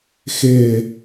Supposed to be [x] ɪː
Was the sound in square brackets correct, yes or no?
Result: yes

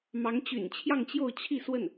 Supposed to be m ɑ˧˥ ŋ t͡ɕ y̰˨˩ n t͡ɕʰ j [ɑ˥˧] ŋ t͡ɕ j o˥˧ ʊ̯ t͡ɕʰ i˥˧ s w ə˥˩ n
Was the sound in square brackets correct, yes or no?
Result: yes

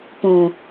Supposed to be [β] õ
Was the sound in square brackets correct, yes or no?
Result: no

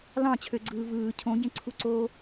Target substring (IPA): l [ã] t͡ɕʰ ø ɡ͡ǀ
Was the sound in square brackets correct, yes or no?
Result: no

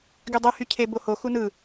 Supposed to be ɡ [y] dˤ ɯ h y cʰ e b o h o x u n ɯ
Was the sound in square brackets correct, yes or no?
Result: yes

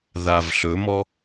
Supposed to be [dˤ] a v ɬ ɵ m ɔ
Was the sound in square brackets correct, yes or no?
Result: no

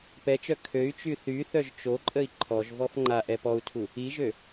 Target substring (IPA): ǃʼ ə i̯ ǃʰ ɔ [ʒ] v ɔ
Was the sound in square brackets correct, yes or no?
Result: yes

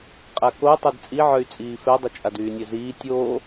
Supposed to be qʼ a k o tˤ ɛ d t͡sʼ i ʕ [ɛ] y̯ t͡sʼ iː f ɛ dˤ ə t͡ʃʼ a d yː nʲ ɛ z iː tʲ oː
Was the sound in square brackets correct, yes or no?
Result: no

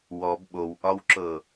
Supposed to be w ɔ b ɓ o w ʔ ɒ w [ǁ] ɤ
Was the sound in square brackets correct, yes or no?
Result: yes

